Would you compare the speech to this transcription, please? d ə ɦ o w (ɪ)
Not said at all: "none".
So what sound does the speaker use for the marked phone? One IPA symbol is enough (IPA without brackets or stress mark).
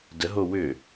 ʏ